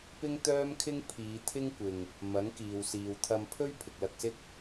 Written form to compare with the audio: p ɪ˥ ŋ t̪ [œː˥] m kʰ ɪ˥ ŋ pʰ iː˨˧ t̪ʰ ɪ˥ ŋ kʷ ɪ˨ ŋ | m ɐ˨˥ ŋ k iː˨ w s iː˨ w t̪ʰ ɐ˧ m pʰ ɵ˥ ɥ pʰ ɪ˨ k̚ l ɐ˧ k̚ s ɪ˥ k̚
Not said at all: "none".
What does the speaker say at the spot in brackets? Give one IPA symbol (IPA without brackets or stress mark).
œː˥